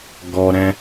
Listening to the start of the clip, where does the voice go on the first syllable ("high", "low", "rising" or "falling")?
high